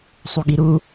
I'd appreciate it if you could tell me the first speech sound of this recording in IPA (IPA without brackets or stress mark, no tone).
sˤ